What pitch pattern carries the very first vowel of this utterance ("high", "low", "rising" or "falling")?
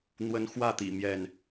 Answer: high